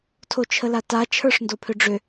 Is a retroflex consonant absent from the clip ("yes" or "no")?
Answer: no